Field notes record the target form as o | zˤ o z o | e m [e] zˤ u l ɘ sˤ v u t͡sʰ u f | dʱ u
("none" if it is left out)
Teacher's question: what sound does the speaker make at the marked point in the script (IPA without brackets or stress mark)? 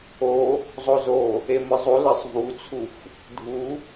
ɘ